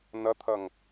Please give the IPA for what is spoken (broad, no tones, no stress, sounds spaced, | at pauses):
n ʌ t̪ʰ ʌ ŋ